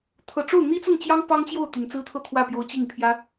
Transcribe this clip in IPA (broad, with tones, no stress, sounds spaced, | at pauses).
t̪ʰ ɤ˨˩ ʈ͡ʂ o˥˩ ʊ̯ n̪ i˥ t͡s ʊ˥˩ ŋ t͡ɕ j ɑ˥ ŋ p ɑ˥ ŋ t͡ɕ j o˥˩ ʊ̯ t̪ y˨˩ n t͡s ɹ̩˥ t̪ʰ ɤ˥˧ t̪ʰ w ä˥˩ p j o˧˥ ʊ̯ t͡ɕ i˥˩ ŋ pʰ j ä˥